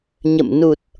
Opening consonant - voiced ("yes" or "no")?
yes